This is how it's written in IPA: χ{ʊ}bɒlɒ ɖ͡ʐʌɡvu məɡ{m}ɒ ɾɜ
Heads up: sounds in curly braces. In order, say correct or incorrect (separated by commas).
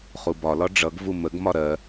incorrect, correct